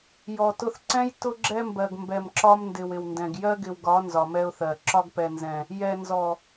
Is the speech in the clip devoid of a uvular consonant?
yes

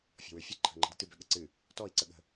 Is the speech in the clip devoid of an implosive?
no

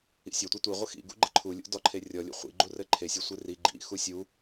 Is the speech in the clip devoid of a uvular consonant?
no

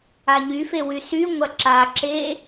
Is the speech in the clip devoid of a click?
no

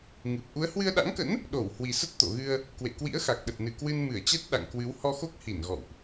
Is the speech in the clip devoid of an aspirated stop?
yes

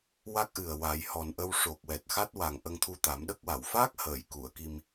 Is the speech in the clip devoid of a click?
yes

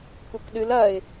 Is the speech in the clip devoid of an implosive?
no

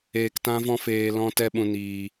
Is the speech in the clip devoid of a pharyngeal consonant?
yes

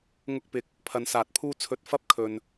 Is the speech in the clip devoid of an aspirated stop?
no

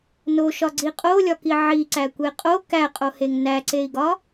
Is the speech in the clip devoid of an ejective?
no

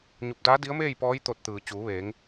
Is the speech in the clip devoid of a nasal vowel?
yes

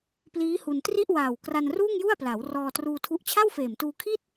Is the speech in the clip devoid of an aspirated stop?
no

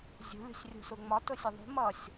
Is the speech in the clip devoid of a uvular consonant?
yes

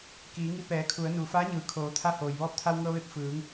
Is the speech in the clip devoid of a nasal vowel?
yes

